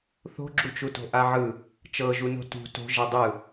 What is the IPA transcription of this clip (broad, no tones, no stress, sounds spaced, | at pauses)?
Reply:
θ o̤ ɡ͡ǁ u t͡ʃ u t o̤ ʔ a ʕ ɯ | t͡ʃ ɤ ʒ u n o̤ t ṳ t o̤ ʒ ɛ dˤ ɯ